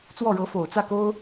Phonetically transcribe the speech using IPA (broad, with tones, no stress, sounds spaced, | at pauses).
t͡s w ɔ˥˩ ɻ ɤ˧˥ f o˨˩ ʊ̯ t͡s ä˥˩ k o˥ ʊ̯